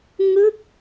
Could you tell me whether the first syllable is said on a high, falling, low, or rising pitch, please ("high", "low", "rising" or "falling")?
falling